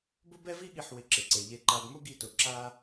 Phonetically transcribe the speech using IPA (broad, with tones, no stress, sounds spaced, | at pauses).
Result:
b ʊ˦ b ɛ˦ v i˦ ɠ i˨ ħ w ɪ˨ ǁ ɪ˩ ǀ e˩ ʎ e˨ ǃ a˨ b m ʊ˦ ɡ i˨ t ʊ˩ ǁ a˥